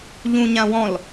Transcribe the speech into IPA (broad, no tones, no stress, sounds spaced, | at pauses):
ʎ ũ ɲ ã w ɔ̃ l